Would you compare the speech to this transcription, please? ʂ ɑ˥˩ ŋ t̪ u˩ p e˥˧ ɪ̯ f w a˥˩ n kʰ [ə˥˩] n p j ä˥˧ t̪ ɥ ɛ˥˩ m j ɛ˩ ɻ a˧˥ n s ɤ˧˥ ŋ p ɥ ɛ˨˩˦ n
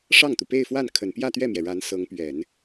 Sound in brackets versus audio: incorrect: ə˨˩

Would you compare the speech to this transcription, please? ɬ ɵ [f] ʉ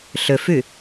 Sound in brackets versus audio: correct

